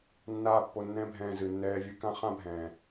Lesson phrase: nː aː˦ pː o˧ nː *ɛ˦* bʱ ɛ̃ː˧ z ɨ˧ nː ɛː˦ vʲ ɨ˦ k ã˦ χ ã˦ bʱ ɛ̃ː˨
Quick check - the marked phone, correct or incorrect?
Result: incorrect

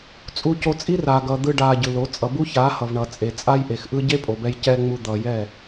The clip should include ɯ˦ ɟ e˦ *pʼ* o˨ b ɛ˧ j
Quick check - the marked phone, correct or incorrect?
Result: correct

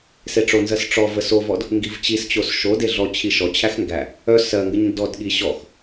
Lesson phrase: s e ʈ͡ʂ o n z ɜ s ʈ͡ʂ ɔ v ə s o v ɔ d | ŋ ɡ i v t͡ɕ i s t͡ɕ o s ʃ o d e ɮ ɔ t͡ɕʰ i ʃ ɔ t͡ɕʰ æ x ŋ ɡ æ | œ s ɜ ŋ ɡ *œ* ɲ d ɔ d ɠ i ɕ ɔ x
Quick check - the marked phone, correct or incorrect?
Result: incorrect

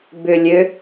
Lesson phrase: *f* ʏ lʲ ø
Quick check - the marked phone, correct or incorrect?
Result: incorrect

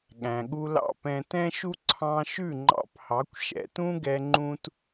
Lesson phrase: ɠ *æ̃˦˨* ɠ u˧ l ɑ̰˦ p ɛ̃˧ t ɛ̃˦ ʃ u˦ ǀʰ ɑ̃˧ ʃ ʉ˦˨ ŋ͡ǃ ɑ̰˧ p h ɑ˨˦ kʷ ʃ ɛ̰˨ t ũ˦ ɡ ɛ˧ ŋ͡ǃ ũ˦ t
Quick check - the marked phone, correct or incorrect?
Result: incorrect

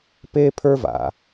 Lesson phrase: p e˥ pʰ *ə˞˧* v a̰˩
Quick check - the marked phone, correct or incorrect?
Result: incorrect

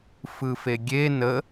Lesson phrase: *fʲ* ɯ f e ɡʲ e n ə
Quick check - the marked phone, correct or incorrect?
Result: incorrect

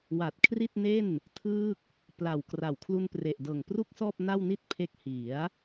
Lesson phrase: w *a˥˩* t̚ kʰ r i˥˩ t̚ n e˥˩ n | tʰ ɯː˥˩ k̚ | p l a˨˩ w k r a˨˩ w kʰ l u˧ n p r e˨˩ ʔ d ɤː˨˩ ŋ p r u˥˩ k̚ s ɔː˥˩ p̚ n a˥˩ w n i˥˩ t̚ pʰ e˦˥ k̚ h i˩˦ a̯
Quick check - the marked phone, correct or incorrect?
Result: incorrect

